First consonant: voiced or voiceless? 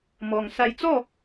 voiced